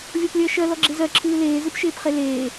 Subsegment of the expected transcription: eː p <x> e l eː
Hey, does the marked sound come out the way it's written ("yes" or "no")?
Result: no